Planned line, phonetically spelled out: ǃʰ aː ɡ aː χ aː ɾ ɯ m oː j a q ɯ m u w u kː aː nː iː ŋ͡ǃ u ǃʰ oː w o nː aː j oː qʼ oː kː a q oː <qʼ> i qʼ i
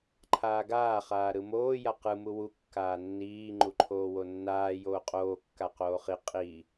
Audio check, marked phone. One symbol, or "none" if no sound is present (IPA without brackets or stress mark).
χ